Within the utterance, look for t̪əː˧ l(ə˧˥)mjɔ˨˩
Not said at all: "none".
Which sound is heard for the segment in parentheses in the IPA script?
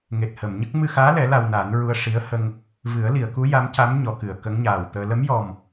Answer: ə˧˥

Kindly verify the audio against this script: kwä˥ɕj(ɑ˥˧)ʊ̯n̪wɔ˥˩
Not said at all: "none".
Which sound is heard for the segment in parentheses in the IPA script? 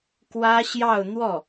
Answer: ɑ˥˧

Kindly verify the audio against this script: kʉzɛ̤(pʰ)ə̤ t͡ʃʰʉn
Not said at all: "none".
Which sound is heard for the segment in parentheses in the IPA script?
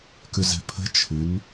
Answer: pʰ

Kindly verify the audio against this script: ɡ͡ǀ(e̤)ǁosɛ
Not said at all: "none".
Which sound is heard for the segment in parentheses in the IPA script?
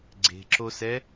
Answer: e̤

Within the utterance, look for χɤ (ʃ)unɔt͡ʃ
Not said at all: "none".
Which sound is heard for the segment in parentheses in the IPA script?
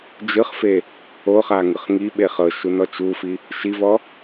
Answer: ʃ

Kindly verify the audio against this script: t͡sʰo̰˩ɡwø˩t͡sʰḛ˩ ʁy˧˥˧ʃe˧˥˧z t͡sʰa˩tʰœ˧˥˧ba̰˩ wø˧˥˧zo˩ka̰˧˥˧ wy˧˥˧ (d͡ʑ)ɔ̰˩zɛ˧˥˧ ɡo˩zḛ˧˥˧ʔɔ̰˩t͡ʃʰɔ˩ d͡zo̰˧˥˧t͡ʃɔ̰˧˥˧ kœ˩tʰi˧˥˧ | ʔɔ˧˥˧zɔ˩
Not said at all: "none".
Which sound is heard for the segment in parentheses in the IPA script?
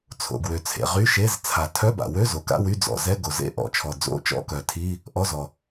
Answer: d͡z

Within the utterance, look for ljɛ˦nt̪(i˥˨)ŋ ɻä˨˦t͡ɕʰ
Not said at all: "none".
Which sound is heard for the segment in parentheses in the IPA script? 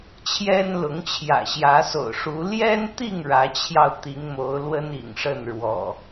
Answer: i˥˨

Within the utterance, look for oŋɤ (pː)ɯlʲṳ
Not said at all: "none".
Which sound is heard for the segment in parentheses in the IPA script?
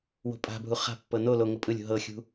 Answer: pʼ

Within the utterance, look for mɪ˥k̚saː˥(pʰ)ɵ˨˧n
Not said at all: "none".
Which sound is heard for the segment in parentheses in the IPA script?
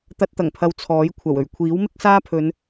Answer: pʰ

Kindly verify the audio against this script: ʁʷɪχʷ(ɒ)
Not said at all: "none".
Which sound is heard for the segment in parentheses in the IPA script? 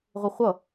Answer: ʌ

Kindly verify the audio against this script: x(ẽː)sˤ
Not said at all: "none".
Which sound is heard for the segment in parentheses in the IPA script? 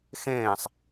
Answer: ẽː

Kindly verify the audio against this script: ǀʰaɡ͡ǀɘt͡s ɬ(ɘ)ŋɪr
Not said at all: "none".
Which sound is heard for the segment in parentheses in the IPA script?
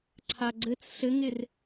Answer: ɘ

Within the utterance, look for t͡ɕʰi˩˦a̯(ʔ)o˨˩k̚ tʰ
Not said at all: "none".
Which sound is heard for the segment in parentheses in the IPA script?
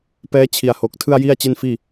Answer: h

